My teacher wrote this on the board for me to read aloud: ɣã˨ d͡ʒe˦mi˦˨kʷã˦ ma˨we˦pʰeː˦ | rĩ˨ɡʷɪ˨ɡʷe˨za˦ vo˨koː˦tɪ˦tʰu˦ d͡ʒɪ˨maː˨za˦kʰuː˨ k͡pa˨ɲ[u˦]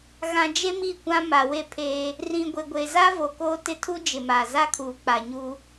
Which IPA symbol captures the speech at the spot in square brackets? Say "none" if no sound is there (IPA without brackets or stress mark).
u˦